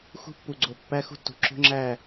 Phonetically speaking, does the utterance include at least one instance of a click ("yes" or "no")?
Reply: yes